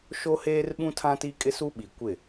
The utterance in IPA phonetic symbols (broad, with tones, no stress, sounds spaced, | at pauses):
ʃ o˦ h eː˦ r ɓ ũ˦ tʰ ã˦ t i˦ kʼ ɪ˦ s u˦ ɓ i˨ kʷ ɪ˦˨